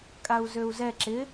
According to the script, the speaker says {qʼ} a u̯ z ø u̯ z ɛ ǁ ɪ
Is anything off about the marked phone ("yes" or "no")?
yes